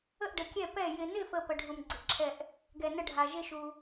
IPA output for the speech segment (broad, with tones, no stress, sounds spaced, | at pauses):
ə˦˨ ʔ ɖ ə˨ kʲ ɛ˦˨ p ɛ˦˨ j ɪ˨ n ɪ˦˨ f ə˨ p ə˨ ɖʱ u˨ m ɡ͡ǀ ɪ˨ ǁʰ ɛ˦˨ ʔ | ɡ ɛ˨ n ə˦˨ ɖʱ a˨ ʒ ɪ˦˨ ʃ u˨